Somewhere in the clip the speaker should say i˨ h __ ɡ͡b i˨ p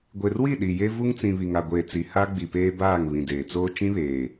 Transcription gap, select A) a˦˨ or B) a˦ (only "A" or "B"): B